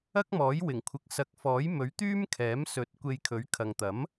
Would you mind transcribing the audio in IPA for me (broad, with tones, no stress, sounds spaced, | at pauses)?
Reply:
ɐ˥ k̚ m ɔː˨˥ j w ɪ˨˩ ŋ kʷʰ ɪ˨˥ k̚ s ɐ˨˥ k̚ f ɔː˨˥ j m ɵ˨˥ ɥ t̪ yː˥ m kʰ ɛː˨˥ m s ɵ˨˥ t̚ kʷ e˧ j kʰ ɵ˨˥ ɥ kʰ ɐ˨ ŋ t̪ ɐ˨˥ m